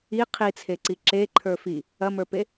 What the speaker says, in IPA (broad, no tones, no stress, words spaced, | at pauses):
i qʰit͡sʰeǀi ǁe ǃʰə˞fi | ɐmə˞pe